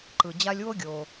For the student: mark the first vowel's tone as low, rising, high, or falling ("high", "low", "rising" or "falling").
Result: low